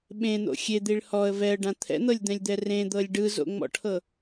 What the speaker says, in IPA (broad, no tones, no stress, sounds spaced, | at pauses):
ɓ ẽ n̪ o̰ xʲ e d̪ i ɭ h ɔ ə̯ v ɛ ə̯ ɖ ã t̪ʰ ɛ̰ n̪ ɤ lʲ d̪ ɛ̃ lʲ d̪ ɛ r ẽ d̪ ɤ lʲ ɖ ɯ z o̰ ŋ͡m ɔ̰ ʈʰ ɤ